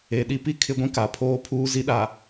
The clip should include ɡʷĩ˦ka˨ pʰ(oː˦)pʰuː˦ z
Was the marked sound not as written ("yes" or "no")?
no